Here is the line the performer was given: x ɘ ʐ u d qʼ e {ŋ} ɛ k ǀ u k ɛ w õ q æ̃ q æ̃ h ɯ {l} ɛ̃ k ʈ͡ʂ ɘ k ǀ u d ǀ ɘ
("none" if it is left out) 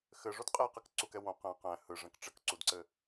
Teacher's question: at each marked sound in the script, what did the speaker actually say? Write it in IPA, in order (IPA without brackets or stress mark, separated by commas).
q, ʐ